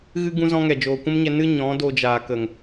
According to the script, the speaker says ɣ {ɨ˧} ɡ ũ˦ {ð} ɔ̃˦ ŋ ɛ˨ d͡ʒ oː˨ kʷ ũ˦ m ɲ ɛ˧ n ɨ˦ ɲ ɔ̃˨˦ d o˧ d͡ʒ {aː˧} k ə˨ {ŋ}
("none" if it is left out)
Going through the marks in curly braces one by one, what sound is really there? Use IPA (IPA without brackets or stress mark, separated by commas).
ɨ˦, z, aː˨, ŋ